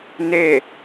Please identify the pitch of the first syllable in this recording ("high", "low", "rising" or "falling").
falling